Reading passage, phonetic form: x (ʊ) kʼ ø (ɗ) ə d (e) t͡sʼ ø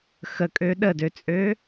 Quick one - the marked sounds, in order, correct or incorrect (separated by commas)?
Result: incorrect, correct, incorrect